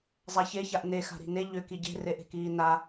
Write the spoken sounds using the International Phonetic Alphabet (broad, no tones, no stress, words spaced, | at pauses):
zˤaçe çaʔne xa̤ɾi̤ne ʎʏ kiɟe̤ reʔe̤kiːna